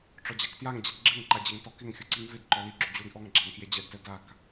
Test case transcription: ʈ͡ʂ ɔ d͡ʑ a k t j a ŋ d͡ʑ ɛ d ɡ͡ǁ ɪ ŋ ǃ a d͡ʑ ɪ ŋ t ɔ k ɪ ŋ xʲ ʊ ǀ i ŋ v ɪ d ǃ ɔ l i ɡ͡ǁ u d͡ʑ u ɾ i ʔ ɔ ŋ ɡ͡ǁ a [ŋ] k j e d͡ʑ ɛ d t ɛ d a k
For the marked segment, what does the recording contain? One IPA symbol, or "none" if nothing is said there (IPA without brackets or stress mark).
ŋ